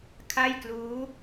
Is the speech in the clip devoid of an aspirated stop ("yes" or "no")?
no